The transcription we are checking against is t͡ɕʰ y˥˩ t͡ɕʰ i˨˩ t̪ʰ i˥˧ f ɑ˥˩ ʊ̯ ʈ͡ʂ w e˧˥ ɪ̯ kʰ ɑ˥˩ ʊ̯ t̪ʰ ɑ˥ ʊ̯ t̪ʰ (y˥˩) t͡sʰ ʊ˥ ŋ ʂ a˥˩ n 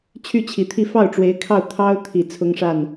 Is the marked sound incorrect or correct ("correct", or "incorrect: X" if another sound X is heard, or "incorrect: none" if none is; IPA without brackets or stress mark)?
incorrect: i˥˩